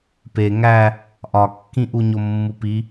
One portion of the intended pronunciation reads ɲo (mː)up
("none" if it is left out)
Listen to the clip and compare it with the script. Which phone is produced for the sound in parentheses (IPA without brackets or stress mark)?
mː